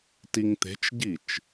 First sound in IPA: t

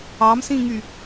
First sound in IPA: ɑ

